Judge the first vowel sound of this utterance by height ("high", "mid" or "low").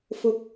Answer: high